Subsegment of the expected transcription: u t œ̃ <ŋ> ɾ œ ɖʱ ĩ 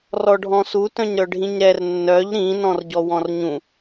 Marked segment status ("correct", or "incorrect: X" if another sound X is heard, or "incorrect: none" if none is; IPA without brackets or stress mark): incorrect: ɲ